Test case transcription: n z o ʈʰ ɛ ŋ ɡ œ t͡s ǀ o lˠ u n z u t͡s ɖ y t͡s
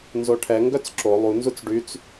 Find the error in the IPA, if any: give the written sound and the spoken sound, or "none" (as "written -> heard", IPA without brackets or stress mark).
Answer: ǀ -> ǁ